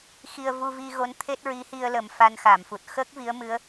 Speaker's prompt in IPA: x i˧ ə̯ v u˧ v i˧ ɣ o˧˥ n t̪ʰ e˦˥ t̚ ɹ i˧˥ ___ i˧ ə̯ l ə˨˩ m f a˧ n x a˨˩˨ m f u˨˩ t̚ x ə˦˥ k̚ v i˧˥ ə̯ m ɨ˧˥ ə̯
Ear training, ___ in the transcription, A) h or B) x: A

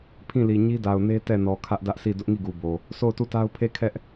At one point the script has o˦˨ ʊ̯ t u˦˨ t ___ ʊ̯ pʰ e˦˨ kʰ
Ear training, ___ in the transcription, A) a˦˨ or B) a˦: B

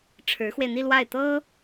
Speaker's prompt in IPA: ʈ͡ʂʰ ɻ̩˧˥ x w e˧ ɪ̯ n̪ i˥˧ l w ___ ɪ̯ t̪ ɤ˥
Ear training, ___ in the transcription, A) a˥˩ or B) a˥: A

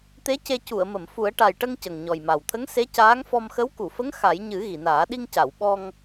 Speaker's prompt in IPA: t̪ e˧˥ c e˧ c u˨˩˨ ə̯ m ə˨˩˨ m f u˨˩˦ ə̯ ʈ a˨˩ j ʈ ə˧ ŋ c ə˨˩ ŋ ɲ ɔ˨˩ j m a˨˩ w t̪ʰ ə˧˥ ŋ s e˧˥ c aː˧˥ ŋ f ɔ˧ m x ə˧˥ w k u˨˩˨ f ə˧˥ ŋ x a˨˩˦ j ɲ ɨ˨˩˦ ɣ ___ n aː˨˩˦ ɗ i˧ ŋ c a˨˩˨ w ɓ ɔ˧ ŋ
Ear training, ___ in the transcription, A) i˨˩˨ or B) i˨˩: A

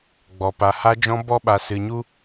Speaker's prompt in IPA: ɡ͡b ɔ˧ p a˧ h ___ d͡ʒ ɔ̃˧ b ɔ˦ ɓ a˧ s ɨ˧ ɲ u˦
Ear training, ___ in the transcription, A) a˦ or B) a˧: B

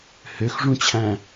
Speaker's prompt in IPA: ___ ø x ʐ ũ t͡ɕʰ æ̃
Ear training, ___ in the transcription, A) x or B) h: B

